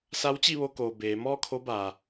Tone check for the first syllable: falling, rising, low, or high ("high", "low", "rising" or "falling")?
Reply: rising